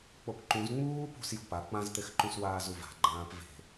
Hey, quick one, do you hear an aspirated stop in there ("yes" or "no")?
no